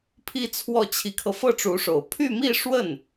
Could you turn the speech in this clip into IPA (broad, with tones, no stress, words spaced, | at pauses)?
pʰi˥˧t͡sʰwɔ˥˩ t͡ɕʰi˧˥kʰɤ˧ fɤ˥˩ʈ͡ʂu˧˥ʂo˨˩ʊ̯ pʰy˥˧mi˥˧ʂwə˥˩n